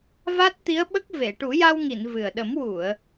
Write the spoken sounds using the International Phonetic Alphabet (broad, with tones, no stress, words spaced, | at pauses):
va˦˥t̚t̪i˧˥ə̯ɓə˦˥k̚ ve˨˩˨ʈu˨˩˦ja˧wŋi˨˩˨n vɨ˨˩ə̯ ɗə˨˩˦mwu˨˩˨ə̯